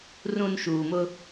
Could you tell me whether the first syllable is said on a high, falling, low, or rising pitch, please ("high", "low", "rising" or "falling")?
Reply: low